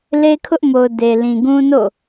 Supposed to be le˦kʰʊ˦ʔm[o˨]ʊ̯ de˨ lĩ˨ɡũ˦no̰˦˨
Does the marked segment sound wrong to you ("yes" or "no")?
no